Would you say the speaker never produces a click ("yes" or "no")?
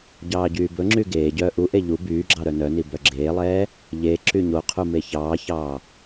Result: no